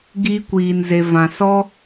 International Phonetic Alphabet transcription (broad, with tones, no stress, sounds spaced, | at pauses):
ɡ iː˦ kʷ iː˧ n z e˧ v ã˧ s ɔ˦